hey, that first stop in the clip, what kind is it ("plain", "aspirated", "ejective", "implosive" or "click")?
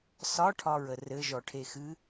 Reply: aspirated